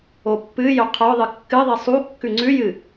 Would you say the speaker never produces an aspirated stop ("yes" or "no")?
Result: no